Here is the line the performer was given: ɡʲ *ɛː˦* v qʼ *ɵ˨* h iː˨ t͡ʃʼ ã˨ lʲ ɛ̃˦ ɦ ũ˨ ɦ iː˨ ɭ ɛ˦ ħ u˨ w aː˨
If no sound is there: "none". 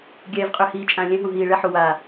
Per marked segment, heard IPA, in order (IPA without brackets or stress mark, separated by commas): ɛː˨, ø˨